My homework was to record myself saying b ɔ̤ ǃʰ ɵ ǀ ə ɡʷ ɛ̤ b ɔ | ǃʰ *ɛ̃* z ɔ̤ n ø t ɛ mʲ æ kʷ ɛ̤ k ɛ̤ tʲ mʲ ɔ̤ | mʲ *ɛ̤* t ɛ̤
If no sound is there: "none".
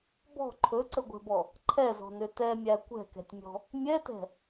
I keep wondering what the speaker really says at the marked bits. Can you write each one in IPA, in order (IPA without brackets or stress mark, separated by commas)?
ɛ, ɛ